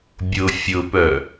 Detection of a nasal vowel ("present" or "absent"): absent